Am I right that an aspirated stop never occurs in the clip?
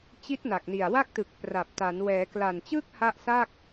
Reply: yes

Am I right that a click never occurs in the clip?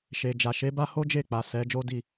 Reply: yes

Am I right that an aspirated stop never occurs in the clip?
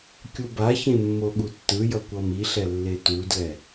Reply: yes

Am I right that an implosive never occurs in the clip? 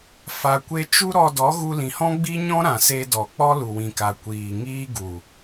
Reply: yes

